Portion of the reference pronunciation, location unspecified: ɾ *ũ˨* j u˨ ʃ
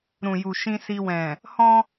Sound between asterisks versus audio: correct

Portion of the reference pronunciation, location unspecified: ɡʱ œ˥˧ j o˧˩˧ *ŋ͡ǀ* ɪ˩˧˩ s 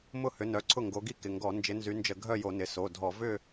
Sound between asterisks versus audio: incorrect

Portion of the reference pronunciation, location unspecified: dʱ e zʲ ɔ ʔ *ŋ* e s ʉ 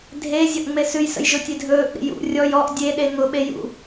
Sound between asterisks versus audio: incorrect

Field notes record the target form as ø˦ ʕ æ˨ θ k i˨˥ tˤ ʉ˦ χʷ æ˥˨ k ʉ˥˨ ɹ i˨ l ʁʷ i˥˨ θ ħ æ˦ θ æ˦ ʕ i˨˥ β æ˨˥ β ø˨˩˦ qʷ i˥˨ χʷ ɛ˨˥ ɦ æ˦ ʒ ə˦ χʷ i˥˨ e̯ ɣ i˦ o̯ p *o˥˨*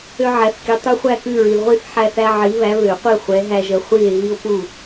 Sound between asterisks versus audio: incorrect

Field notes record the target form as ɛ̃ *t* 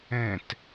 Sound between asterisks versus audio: correct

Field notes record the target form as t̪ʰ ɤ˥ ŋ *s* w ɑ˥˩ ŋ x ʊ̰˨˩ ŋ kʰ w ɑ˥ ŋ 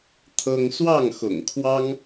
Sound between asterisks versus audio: correct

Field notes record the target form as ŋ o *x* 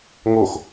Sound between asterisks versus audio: correct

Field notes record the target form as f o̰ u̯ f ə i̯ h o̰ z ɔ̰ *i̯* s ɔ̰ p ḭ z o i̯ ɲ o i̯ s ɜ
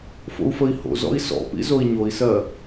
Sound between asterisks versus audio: correct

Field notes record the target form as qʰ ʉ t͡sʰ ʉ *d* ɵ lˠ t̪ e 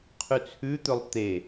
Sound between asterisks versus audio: incorrect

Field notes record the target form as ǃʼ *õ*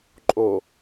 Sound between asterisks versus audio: incorrect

